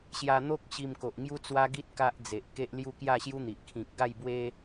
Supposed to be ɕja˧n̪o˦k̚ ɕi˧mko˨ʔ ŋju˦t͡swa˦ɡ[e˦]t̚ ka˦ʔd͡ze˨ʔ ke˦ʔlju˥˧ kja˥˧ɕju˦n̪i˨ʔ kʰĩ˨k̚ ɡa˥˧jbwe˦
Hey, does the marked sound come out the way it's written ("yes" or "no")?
no